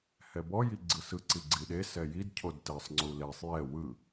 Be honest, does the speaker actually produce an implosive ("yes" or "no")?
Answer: yes